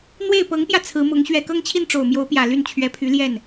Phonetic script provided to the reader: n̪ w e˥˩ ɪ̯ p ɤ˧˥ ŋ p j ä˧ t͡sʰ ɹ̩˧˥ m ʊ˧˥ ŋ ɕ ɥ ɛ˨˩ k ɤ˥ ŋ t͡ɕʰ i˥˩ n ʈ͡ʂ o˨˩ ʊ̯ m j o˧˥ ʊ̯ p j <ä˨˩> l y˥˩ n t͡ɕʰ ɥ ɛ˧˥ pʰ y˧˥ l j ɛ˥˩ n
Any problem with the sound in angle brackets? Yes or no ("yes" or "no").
no